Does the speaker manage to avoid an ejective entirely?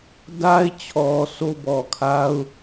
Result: yes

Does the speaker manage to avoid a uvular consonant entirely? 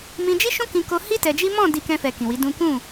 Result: yes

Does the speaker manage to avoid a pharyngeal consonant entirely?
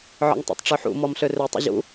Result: no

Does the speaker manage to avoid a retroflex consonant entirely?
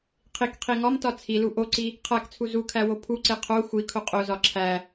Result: yes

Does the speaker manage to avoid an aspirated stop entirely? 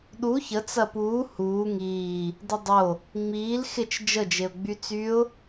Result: yes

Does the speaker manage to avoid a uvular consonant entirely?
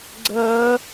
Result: yes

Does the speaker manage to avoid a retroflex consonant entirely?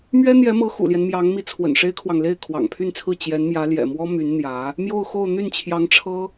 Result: no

